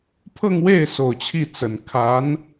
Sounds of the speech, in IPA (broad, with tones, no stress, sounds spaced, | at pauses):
pʰ ɤ˥˧ ŋ w e˥˩ ɪ̯ s o˨˩ ʊ̯ t͡ɕʰ i˥˩ t͡s ə˨˩ n kʰ a˧˥ n